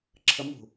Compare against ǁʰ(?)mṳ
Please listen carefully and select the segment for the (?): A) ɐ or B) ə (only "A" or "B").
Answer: B